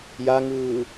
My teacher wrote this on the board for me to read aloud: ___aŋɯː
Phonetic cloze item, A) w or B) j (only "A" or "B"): B